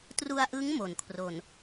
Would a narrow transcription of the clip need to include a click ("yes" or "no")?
no